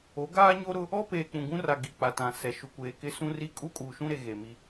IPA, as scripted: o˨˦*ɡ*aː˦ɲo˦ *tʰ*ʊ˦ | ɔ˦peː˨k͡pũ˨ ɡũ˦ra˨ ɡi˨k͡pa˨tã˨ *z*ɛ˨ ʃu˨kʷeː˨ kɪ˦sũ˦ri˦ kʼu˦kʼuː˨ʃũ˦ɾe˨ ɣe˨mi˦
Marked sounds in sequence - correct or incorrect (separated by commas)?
correct, incorrect, incorrect